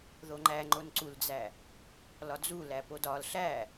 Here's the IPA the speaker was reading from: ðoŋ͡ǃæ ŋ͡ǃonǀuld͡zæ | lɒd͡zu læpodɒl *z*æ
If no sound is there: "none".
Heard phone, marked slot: ɬ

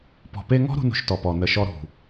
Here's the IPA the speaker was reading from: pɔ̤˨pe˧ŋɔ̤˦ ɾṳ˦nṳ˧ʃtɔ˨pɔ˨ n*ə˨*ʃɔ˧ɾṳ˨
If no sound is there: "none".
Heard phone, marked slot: ə˨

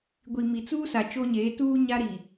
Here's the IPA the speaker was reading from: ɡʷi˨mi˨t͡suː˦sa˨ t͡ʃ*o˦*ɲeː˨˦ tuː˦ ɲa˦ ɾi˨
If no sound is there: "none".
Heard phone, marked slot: o˦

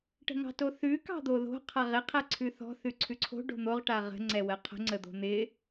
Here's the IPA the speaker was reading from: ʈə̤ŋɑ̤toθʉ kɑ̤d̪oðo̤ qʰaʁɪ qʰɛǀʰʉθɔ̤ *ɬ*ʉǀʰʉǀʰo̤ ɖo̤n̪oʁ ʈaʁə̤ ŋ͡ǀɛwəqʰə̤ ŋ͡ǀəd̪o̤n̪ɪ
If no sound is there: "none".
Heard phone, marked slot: θ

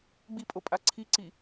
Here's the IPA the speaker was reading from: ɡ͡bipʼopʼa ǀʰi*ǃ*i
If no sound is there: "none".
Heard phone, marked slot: ǀ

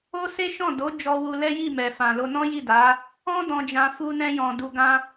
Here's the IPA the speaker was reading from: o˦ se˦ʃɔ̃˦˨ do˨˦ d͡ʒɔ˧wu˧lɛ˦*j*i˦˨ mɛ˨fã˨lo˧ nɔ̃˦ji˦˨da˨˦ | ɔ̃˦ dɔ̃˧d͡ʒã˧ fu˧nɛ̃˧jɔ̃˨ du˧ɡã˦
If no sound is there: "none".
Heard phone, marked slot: j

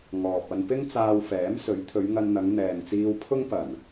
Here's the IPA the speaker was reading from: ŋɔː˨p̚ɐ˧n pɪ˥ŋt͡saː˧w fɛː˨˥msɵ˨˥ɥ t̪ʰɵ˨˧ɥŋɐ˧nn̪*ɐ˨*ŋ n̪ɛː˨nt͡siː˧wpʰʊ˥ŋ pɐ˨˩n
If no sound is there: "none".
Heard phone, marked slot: ɐ˨˧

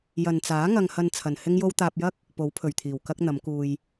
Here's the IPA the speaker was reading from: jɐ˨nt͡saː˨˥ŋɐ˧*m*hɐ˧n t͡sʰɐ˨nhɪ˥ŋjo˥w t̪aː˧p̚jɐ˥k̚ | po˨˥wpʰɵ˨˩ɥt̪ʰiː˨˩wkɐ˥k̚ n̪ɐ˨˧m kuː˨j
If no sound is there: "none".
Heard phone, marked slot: ŋ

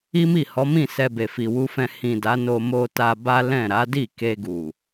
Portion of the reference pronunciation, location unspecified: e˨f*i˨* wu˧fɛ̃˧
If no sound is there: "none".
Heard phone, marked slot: i˨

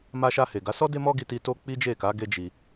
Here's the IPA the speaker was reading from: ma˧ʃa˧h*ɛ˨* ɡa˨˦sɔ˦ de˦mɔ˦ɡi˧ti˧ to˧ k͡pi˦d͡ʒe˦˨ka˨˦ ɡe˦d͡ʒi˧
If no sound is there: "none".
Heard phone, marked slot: e˨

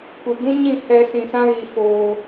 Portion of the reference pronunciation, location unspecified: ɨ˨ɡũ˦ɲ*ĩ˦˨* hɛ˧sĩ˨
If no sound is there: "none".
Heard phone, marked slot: ĩ˦˨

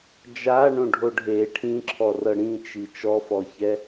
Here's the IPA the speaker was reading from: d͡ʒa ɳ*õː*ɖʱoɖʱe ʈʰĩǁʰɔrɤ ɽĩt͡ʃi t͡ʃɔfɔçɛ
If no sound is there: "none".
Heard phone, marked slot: õ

